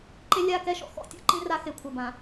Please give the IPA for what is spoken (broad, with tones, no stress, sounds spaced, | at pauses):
ǃ e˦ lʲ a˦˨ k ɛ˦ ʃ ɔ̰˨ x ɔ̰˦ tʲ ɔ̰˦ ǃ ĩ˦ r a˦ x e˨ kʷʰ ɐ˨ b ã˨